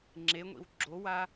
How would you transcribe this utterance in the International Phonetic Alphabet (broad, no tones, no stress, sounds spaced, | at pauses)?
ŋ͡ǁ e ŋʷ ḭ w ɡ͡ǁ o w a